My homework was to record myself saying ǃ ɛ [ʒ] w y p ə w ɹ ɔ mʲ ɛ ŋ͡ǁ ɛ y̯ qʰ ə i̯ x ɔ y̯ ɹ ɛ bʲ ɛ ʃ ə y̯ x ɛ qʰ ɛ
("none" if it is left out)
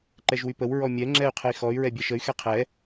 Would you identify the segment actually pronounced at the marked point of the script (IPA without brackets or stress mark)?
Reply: ʒ